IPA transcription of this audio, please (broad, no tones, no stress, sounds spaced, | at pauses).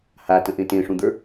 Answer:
h a t ə̃ ʔ ẽ t ẽ ʂ ũ d̪ ə˞